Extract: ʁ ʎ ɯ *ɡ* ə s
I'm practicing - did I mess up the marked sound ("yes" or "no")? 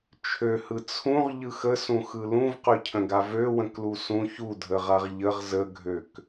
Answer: yes